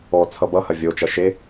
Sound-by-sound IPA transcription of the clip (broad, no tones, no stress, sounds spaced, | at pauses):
ɔ t͡sʰ ʌ b ʌ h ɐ vʲ o t͡ʃ ɐ ʃ e